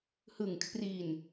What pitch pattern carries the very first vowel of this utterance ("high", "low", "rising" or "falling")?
low